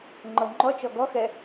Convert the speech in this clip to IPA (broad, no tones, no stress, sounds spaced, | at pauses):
ŋ͡ǃ ɤ ŋ͡ǃ ɔ t͡ʃ ɔ ɡ ɔ x ɛ